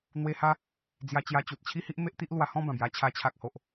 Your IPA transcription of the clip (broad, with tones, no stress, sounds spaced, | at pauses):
n̪ w e˧ h a˧ | d͡z j a˧ t͡ɕ j a˧ t͡ɕ u˨ t̚ t͡ɕʰ i˦ h i˦ ʔ m e˦ ʔ t̪ i˦ ʔ l w a˧ h ɔ̃˥˧ b ã˨˩ b j a˧ t͡ɕʰ a˧ t͡ɕʰ a˨ k̚ h o˨ ʔ